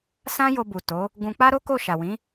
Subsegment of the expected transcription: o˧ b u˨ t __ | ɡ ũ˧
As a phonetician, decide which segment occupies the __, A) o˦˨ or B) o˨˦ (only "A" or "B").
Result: B